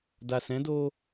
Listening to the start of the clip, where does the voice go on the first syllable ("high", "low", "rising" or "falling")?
low